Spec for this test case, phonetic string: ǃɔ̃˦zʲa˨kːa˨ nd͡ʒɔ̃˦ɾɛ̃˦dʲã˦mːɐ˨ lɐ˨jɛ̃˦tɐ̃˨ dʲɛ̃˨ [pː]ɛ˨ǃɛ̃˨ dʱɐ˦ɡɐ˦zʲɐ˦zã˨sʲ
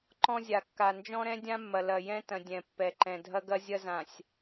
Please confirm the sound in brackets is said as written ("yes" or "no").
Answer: yes